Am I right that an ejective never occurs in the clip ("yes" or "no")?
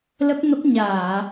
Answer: yes